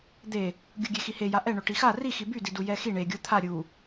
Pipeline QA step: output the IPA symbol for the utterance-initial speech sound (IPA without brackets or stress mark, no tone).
d̪